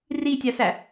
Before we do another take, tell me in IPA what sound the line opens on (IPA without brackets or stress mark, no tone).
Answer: r